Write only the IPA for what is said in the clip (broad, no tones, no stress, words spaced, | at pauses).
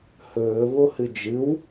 hɵːvohɨ d͡ʒɨw